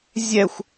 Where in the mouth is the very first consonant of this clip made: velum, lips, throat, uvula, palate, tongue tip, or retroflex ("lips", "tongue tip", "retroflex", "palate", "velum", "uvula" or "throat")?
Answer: tongue tip